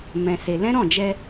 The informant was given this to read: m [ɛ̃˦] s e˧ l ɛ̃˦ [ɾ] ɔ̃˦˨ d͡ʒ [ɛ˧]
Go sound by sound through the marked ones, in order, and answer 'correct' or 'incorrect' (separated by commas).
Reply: incorrect, correct, correct